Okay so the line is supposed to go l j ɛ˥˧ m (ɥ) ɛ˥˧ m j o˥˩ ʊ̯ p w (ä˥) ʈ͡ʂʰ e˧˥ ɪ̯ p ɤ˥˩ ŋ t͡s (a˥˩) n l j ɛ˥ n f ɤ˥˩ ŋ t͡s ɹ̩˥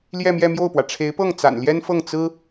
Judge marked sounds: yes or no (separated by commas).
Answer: no, no, no